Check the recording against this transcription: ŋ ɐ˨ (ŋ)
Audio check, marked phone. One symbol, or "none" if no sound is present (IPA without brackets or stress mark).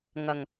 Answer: ŋ